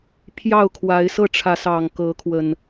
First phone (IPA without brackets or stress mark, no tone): pʰ